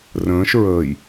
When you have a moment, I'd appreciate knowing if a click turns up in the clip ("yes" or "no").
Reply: no